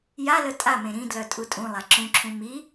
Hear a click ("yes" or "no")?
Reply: yes